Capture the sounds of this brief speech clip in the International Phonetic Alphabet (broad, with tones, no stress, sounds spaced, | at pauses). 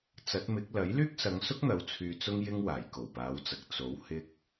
t͡s ɐ˨˥ t̚ m ɪ˨˥ k̚ l ɐ˨˥ j l yː˥ k̚ s ɐ˨˧ ŋ s ʊ˥ k̚ n̪ ɐ˨ w t͡sʰ yː˨ t͡s ʊ˥ ŋ j ɪ˥ ŋ w aː˨˩ j k o˨˩ w p aː˨˧ w t͡s ɐ˨ k̚ t͡s o˨˥ w h ɪ˥ k̚